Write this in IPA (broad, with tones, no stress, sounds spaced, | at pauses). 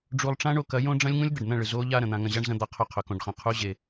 ɖ͡ʐ u˧ lˠ ʈ͡ʂ ã˦ ɳ o˧ k ɐ˨˦ j õ˦ ɖ͡ʐ ɐ̃˦ lʲ ŋ ũ˦ lʲ d̪ ɐ˨ ɖ n̪ ɐ̃˦˨ ɭ ɨ˨ z o˦ ʎ a˧ ɾ ɐ̃˨ n̪ ã˧ ŋ ɐ̃˧ ʑ a˦ ɳ z ɐ̃˧ d̪ a˧ qʰ ɵ˦ qʰ ɵ˨ k õ˧ ɖ χ ɐ̃˧ qʰ u˦ ʑ e˧